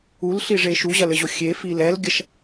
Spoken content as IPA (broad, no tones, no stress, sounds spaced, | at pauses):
u l ɬ i ʐ e ʃ u ʑ ɐ l ɘ ʑ o xʲ e f i l ɛ l ɡʲ ɐ ʃ